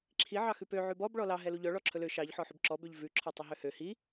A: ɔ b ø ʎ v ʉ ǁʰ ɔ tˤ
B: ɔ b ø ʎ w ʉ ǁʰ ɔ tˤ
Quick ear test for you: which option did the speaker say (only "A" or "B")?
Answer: A